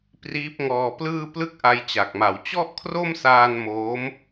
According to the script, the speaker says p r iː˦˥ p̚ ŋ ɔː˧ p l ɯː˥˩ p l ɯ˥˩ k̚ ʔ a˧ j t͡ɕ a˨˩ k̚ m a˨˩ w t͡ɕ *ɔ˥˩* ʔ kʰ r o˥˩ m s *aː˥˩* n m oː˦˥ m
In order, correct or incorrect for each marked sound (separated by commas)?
correct, incorrect